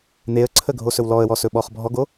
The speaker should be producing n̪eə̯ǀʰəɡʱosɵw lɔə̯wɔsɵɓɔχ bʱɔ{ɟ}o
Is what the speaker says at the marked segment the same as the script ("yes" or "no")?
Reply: no